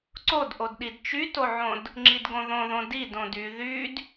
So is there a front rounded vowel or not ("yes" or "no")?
yes